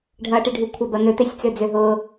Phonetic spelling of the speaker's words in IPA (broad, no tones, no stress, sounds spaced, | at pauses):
ɖʱ ɐː ʈ e ɖʱ u kʷʰ ɐ b ɐ n̪ ø t̪ e sʲ t͡s ø d͡z ø ɦ ʊː